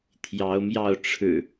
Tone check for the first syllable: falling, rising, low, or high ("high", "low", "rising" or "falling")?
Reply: rising